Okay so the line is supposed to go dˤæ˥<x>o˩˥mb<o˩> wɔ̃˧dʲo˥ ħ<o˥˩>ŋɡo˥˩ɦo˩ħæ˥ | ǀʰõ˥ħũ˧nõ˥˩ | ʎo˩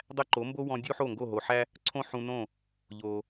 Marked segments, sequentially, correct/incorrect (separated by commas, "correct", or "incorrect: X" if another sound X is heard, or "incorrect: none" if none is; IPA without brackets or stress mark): incorrect: ǃ, incorrect: o˥, correct